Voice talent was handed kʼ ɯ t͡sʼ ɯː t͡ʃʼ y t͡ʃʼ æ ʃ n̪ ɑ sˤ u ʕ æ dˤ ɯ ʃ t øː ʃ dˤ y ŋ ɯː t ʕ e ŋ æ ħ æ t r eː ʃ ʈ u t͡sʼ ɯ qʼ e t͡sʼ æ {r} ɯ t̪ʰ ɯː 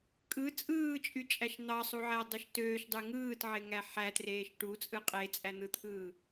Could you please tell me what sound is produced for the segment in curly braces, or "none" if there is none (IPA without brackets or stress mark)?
n̪